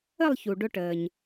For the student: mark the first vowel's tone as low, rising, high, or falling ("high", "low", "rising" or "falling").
falling